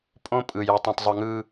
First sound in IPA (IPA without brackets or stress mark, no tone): pʼ